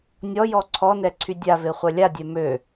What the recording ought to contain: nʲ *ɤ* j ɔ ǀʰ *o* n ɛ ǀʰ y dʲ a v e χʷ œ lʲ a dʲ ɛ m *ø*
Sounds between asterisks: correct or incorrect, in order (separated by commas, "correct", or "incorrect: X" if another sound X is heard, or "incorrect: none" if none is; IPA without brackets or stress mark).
incorrect: ɔ, incorrect: ɔ, correct